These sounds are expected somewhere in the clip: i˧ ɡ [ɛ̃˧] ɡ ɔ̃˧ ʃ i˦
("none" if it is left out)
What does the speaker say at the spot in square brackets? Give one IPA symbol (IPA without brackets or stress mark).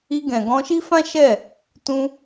ɛ̃˨